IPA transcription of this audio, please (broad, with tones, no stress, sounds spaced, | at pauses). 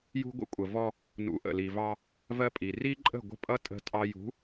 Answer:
j ṳ˦ ɡʷ ə̰˦ kʷʼ ə˨ v ɔ˦ | n ṵ˨˦ ʔ ə̰˨ l i˨ v ɑ˦ | v ɜ˦ pʼ i˨ r i˦ ǃʼ ə̤˦˨ ɡʷ ə̤˦ pʼ ʌ˦ tʼ ə̤˦ tʼ ɑ˦ j ṳ˨˦